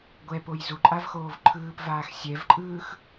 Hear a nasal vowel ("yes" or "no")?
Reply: no